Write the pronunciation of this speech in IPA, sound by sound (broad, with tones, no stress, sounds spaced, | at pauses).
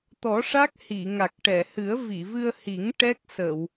t̪ ɔ˨˩˦ ʂ a˦˥ k̚ h i˨˩˨ ŋ a˨˩ k̚ ʈ ɛ˨˩˨ h ɨ˨˩˦ ə̯ v i˨˩˨ v ɨ˧ ə̯ h i˨˩˦ ŋ ʈ ɛ˦˥ k̚ s ə˨˩˨ w